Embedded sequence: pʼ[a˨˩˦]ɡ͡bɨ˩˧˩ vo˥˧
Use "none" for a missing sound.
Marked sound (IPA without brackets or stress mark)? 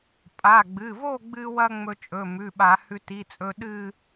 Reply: a˩˧˩